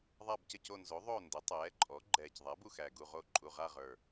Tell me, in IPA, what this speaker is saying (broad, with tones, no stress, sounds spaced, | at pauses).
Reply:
ðˤ a˦˨ b c ə˦˨ c o˦˨ n z o˩˥ ðˤ o˦˨ n d ə˩˥ tˤ ɛː˩˥ ǃʼ ɔ˩˥ ɡ͡ǃ ɛː˨˩ c ðˤ ɛ˩˥ b u˨˩ x æ˨˩ ɡ u˦˨ ʁ o˦˨ ǃʼ u˨˩ ʁ a˦˨ ʁ ə˞˨˩